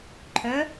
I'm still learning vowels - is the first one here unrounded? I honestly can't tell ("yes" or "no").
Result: no